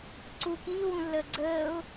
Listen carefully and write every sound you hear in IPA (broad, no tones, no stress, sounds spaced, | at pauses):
ǀ u k iː w ũ lː əː ɡ͡ǀ əː ʊ̯